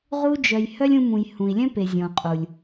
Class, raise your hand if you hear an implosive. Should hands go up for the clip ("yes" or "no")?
no